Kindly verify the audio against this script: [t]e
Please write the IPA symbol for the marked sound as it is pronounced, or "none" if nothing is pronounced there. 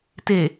t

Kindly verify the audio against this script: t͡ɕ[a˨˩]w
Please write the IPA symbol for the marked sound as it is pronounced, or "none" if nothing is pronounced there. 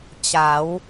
a˩˦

